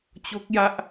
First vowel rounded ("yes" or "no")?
yes